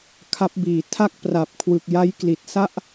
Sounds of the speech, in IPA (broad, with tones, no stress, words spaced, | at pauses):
kʰa˦˥p̚biː˨˩ tʰa˥˩k̚pra˨˩p̚kʰwɯ˨˩k̚ja˦˥j kli˨˩t̚sa˥˩ʔ